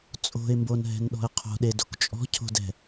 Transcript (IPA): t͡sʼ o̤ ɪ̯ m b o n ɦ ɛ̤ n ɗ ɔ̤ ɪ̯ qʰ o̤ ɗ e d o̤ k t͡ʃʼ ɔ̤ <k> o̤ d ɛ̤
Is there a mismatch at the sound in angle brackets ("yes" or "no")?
yes